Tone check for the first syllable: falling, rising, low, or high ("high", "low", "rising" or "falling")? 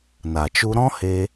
low